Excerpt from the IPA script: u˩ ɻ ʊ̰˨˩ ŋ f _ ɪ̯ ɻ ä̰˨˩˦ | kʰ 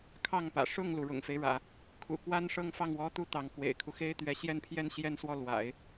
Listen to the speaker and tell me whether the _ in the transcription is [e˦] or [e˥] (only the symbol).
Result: e˦